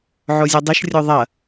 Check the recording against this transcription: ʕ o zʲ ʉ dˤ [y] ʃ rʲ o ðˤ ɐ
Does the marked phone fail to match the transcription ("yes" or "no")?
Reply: yes